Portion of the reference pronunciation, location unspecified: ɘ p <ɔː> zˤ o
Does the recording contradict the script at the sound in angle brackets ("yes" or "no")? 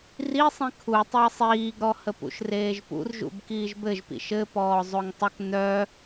no